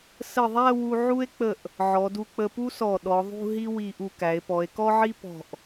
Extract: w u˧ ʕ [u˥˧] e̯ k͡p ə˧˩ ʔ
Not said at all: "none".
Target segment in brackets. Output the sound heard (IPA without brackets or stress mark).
u˥